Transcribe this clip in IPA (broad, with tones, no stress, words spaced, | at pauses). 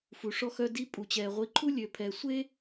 fu˨ʂɔ˦xœ˦di˦ pʼu˨t͡ɕɛː˨ ʁʷi˨ǃʰu˦ lʲø˨pʰɛ˨sʷe˦